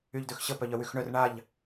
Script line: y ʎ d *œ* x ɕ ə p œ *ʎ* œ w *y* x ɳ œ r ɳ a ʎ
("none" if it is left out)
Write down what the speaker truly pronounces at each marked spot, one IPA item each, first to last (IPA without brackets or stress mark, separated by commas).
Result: ø, ʎ, y